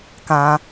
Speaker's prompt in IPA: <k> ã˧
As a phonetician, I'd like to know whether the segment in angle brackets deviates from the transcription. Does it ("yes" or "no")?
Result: no